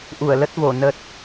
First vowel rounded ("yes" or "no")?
yes